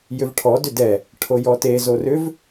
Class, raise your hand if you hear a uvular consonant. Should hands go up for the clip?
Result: no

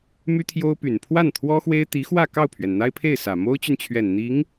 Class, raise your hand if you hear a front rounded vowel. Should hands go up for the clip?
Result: yes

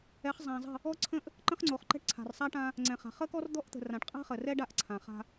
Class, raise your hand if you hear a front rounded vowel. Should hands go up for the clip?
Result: no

